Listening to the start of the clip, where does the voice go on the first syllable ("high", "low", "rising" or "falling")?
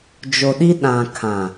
low